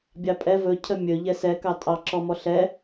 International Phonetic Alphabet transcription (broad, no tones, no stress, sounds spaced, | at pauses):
bʲ ɑ pʼ ɛ v ɵ cʰ ə mʲ ɵ ʎ ɛ s ɛ k ɑ tʼ ɑ ǁ ɔ m ɔ ɬ ɛ